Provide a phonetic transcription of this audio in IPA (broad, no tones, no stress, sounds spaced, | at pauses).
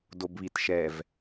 d o b β i t ʃ ɛ v